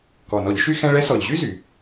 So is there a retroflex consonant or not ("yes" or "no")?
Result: yes